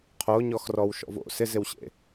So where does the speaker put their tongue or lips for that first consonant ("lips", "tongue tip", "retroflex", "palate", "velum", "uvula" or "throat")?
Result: uvula